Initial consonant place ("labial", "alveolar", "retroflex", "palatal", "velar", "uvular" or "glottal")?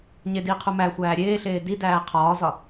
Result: palatal